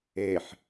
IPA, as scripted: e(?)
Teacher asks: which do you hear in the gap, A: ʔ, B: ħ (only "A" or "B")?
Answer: B